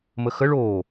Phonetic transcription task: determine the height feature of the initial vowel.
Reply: mid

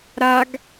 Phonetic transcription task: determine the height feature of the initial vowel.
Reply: low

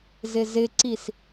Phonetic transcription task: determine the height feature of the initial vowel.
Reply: high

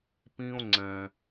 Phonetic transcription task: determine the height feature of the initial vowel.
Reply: high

